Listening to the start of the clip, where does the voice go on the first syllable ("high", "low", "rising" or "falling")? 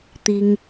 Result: high